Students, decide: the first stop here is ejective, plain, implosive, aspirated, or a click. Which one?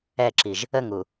click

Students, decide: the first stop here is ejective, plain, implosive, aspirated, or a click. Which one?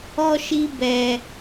plain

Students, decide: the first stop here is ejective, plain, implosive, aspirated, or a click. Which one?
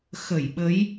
implosive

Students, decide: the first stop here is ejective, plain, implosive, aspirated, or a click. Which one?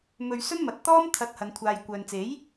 plain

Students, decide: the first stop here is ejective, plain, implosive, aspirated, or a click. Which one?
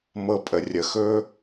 ejective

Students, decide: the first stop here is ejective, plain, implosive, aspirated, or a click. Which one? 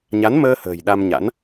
implosive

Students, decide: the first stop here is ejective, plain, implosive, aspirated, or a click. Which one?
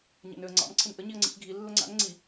click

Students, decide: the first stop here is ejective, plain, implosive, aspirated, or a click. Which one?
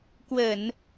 plain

